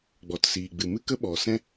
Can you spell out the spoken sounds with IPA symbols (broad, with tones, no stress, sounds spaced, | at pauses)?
ɡ͡b ɔ˨ t s iː˨ ɡ͡b ɨ˨ m ɨ˦ k ə˦ ɓ ɔ˨ s ɛ̃˦